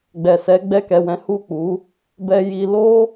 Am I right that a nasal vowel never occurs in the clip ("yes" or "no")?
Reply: no